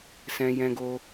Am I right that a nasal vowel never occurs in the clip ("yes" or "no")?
no